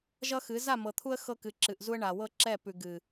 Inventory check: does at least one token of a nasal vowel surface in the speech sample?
no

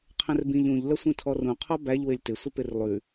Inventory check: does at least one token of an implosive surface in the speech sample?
no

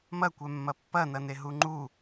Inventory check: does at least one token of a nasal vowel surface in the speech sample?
no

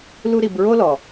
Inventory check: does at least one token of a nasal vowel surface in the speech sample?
no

